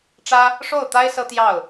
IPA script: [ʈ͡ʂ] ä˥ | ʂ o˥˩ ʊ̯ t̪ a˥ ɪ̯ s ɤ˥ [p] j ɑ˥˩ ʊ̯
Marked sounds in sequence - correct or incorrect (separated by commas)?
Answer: correct, incorrect